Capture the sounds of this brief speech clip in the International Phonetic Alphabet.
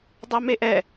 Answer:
dˤ a m e ʔ ɛ

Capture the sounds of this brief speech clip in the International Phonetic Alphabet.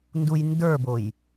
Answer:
n d u j n d ə˞ b o j

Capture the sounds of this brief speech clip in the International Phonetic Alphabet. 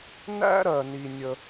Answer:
n æ̰˥ ɾ ɜ˩ n i˩ nʲ ə˩

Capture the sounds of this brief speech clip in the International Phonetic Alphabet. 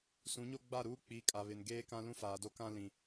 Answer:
s ũ˨˦ ɲ o˦ ɡ͡b a˦˨ ɾ uː˦ k͡p i˨˦ kʼ a˨ β ɪ˨ n ɡ eː˦ k ã˦ l ũ˦ f aː˨ d o˦ k ã˦ l ĩ˨

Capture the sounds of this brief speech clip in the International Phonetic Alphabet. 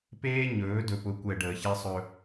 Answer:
p eː˦ ɲ ɵː˨˦ d ɵ˨ p ʊ˨˦ kʷ ɛ˨ ɖ əː˨ ç ɛ˦ sˤ ɵ˦

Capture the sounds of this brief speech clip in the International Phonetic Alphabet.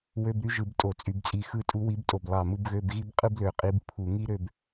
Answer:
w ø˧˥˧ b ɾ y˥ ʒ ɯ˧˩˧ b tʼ o˧˩˧ t͡sʼ y˧˩˧ b t͡sʼ i˧˩ x ɯ˧˩ tʼ u˧˥ w i˧˥ b tʼ o˧˩ b lˠ ɑ˧˩ m ɯ˥˧ b ɣ ø˧˥˧ b ɣ i˥ b qʼ ɯ˥ b l ø˧˩ qʼ i˧˥ b pʰ u˧˩˧ ŋ i˥ ɾ ø˥˧ b

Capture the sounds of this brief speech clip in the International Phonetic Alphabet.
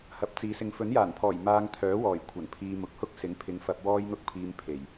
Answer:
h ɐ˨˥ p̚ t͡s iː˨˥ s ɪ˧ ŋ f ɵ˨˥ n j aː˨˩ n pʰ ɔː˨˩ j m aː˧ ŋ t̪ʰ œː˨˥ w ɔː˨˩ j kʷʰ ɐ˨˩ n pʰ iː˧ m ʊ˨˥ k̚ h ʊ˥ k̚ s ɪ˨˥ ŋ pʰ ɪ˨˧ ŋ f ɐ˧ p̚ w ɔː˥ j n̪ ʊ˥ k̚ pʰ iː˧ m pʰ e˨˩ j

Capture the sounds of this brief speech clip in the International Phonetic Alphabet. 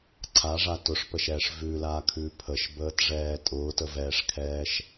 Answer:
ǀʰ a ʐ a t ʊ ʂ p ə ʃ ɛː ʂ v ʉ l aː kʰ ʉː pʰ ə ʃ b əː t ʐ ɛː tʼ ʊː t ə v ɛː ʂ kʰ ɛː ʃ

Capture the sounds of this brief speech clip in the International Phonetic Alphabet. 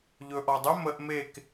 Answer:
ʎ ɵː ʔ ɔ dˤ ɵ m ə ʔ m e k

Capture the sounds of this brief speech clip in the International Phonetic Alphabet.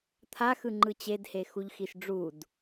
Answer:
t̪ʰ a x ɯ ŋ͡ǃ ɯ t͡ɕ e d h e x u ʎ x i ʃ ɖ͡ʐ u d

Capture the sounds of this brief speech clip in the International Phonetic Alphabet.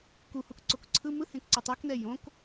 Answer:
k u h u k ǀ o k ǀʰ ɯ m ɯ h ẽ k ǀ ɤ tˤ ɤ k n ɛ j õ k

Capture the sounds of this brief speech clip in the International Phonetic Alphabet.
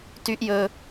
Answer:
t y˦ ʔ j ɵ˦

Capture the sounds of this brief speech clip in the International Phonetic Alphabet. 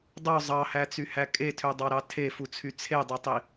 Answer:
dˤ o zˤ ɑ h æ t͡s y h æ kʼ e tʰ ø dˤ ɑ ɾ ɑ tʰ e f u t͡sʰ y t͡sʰ e dˤ ø tˤ i

